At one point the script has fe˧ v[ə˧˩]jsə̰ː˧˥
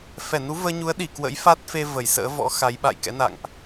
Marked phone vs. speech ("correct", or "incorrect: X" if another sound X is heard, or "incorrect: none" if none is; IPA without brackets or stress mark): correct